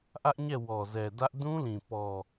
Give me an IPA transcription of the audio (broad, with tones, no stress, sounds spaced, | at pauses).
ʔ ä˦ ʔ ɲ ɛ˦˨ w ɔ˨ z ɛ˨ d ä˦ ʔ d ũ˦ l ĩ˨ p ɔ˨